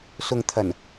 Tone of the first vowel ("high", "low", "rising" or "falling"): low